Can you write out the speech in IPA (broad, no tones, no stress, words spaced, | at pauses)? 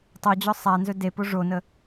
tˤod͡ʑɔ sˤanzɵ depo ʐonə